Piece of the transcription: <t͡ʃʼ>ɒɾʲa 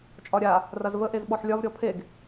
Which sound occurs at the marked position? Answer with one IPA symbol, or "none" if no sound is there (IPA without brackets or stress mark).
t͡ʃʼ